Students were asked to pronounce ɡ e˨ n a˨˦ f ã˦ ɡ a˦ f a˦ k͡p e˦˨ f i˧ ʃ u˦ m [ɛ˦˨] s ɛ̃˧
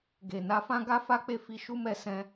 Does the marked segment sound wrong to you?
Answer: no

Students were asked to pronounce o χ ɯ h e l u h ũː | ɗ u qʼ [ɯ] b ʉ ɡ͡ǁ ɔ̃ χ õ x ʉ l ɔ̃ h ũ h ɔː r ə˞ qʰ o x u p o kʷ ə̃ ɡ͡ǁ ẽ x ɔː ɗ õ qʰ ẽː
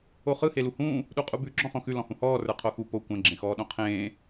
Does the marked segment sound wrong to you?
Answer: yes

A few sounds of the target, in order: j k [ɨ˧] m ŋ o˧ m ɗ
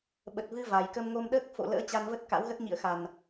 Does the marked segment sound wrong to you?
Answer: yes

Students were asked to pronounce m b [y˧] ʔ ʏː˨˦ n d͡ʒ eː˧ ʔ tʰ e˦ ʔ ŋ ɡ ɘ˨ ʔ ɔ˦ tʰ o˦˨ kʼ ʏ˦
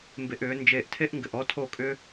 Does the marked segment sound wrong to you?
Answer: yes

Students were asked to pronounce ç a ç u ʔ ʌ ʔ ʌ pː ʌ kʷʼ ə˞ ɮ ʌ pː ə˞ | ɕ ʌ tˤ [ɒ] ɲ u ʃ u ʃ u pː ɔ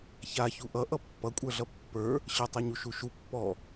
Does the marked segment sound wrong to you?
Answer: yes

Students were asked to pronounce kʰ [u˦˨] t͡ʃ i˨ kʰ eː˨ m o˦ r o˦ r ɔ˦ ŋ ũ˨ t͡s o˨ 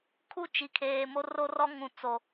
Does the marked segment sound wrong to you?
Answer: yes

